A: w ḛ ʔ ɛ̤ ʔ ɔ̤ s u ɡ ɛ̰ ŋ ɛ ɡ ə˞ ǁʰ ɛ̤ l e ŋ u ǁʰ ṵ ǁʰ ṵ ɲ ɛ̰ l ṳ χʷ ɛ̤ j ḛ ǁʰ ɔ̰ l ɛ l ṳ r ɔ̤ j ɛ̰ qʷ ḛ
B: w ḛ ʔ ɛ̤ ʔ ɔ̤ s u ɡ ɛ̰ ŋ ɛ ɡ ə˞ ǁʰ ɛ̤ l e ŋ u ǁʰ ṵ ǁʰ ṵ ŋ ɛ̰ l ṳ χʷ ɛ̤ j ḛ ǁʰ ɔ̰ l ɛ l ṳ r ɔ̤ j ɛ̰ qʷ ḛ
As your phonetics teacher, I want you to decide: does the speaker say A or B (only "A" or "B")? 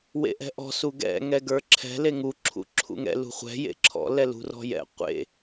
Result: B